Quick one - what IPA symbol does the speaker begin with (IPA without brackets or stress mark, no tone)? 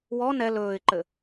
w